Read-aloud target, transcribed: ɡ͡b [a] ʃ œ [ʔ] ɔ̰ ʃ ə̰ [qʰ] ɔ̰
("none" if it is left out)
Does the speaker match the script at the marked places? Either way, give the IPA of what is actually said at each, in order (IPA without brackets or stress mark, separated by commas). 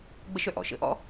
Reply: ə, ʔ, ʔ